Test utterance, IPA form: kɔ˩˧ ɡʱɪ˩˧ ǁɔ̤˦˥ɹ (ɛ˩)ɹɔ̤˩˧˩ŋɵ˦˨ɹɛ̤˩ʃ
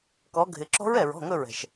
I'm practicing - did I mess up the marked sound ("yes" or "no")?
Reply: no